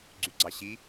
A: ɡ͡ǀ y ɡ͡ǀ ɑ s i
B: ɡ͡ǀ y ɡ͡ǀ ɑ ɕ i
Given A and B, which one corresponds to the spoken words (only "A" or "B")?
B